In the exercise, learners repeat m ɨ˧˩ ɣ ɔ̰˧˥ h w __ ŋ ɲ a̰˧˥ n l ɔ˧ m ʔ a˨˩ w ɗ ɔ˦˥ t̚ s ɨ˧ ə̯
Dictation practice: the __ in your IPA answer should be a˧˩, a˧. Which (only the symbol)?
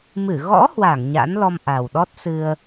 a˧˩